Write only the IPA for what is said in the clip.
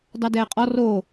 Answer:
d ɑ d ɛː qʼ ɔ r o

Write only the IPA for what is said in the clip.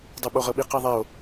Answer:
dˤ e ɓ o ʁ ɤ ɓ i q i ðˤ ɛ o̯

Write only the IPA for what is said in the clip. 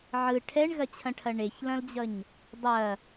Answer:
ʕ ɯ ʈʰ ɛ ɳ ɣ ɐ t͡ɕʰ ɐ̃ ʈʰ ɐ ɳ e ç l ɐ̃ l d͡ʑ ʌ ɲ | dˤ ɐ

